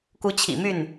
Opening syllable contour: rising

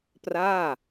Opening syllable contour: falling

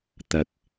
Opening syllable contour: low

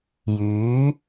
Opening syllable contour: rising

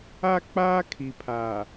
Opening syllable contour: high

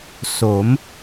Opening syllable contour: rising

